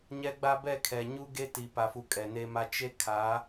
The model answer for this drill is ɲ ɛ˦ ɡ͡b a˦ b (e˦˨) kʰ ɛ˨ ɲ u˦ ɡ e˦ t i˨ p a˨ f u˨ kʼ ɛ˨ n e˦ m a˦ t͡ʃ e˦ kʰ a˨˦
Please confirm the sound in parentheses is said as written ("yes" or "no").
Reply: no